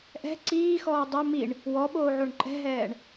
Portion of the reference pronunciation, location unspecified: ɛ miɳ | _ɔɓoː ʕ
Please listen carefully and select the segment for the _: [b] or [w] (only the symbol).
w